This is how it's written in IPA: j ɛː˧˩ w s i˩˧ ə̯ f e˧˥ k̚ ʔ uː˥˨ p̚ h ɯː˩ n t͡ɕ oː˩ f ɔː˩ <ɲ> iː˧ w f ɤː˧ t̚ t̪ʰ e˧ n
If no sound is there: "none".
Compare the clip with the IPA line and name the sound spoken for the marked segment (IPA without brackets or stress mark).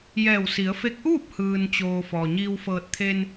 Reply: ɲ